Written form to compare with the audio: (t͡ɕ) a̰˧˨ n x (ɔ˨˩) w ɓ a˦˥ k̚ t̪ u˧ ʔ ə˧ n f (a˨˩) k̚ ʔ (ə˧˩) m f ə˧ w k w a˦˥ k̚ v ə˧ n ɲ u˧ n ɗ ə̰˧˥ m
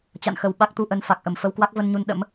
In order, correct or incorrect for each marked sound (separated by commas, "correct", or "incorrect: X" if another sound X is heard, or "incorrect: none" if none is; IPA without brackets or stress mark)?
correct, incorrect: ə˨˩, correct, correct